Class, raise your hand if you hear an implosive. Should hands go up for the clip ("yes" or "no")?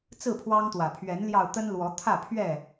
no